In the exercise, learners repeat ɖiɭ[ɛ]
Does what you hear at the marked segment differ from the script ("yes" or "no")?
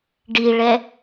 no